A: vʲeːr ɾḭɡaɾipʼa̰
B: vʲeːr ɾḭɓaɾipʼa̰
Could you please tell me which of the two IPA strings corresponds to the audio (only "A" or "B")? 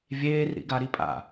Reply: A